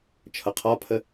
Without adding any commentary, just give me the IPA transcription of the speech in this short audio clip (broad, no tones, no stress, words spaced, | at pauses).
t͡ʃʰʌqʰɒpʰə